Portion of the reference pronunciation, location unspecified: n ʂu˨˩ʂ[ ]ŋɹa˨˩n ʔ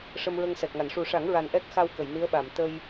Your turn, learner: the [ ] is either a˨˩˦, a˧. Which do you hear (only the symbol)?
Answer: a˨˩˦